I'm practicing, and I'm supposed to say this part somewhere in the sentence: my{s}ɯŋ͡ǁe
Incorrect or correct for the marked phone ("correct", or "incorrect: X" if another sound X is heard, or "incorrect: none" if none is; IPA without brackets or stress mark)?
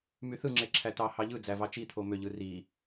incorrect: θ